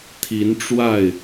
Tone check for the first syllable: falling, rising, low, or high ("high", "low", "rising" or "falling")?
rising